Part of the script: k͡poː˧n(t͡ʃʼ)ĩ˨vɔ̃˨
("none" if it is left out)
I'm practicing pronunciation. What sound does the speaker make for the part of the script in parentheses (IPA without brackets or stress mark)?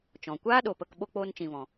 t͡ʃ